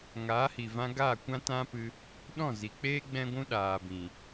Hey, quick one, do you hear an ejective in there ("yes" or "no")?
no